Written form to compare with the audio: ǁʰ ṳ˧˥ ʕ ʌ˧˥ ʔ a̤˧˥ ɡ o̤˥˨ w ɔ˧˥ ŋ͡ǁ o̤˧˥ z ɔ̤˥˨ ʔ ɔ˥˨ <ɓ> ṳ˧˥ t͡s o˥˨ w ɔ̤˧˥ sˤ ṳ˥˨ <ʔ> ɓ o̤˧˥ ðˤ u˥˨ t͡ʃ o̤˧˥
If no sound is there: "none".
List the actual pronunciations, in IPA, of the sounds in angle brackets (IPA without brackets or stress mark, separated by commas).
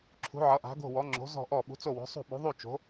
ɓ, none